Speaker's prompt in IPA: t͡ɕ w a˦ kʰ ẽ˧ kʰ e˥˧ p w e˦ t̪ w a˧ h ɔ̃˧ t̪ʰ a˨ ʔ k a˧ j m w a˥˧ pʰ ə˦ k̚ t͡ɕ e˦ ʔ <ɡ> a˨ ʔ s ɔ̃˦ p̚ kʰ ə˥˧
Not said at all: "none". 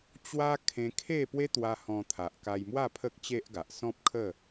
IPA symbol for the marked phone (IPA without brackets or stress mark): ɡ